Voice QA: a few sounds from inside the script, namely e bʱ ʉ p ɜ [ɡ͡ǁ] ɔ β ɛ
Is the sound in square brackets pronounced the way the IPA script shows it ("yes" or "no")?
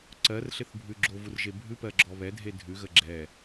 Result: yes